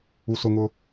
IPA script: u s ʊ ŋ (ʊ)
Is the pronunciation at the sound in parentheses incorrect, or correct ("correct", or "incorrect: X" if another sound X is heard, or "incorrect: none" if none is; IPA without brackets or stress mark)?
correct